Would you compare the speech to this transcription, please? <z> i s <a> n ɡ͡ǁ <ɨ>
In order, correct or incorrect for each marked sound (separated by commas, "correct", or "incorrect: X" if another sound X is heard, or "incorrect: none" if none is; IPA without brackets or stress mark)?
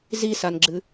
correct, correct, correct